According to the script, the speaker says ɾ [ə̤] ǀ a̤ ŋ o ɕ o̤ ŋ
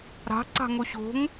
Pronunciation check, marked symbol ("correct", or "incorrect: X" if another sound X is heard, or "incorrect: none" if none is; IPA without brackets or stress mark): incorrect: a̤